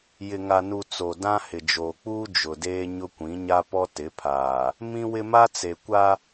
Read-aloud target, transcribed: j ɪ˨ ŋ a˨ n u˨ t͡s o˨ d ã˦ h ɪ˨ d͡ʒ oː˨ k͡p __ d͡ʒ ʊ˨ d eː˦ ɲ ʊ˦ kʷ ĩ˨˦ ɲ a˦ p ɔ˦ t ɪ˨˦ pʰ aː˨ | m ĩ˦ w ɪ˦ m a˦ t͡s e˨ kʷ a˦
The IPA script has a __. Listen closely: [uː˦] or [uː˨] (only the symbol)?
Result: uː˦